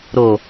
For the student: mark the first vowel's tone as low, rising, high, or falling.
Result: low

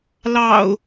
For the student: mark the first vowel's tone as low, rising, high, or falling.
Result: low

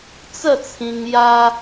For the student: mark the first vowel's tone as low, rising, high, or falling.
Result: falling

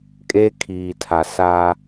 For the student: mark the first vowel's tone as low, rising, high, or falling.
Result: high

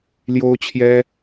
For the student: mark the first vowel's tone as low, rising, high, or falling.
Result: high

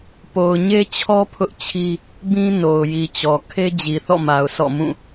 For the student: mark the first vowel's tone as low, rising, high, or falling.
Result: low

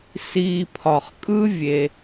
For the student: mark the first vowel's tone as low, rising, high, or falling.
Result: low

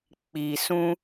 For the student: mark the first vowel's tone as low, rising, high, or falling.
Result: low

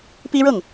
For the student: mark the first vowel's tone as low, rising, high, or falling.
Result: high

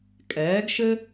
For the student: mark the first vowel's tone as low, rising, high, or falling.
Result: rising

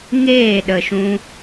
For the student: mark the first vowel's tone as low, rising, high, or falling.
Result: falling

